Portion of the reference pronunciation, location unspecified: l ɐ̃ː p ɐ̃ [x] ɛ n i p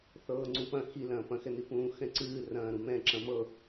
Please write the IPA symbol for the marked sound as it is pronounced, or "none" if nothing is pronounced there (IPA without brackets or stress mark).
x